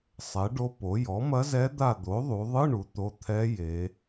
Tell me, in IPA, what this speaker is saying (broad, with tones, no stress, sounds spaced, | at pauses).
sˤ ɛ˩˥ ɖ o˧˥ p o˩˥ j ɔ˩˥ m ɐ˧˥ z ɛ˧˥ d̪ a˦˨ d̪ o˩˥ ðˤ u˩˧ ðˤ ɨ˧˥˧ ɳ u˩˥ t̪ o˧˥˧ t̪ʰ ɛ˧˥ j e˩˧